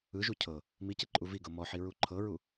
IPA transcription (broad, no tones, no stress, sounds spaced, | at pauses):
ɯ ʒ u cʰ ɤ | m i c e ǃʼ u v i ɡ ɤ m ɔ ħ i ɹ u ǃʰ ɤ ɹ u